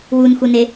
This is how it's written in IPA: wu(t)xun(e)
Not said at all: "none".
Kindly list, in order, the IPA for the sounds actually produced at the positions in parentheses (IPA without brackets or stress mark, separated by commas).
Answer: n, e